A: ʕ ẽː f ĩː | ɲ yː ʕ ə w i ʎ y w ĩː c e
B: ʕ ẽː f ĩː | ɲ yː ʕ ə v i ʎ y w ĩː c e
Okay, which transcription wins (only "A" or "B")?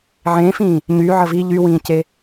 B